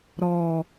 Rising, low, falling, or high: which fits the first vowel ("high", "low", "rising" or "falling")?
low